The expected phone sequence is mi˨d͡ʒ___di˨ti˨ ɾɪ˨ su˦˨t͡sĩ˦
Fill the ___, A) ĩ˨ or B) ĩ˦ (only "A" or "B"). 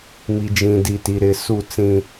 A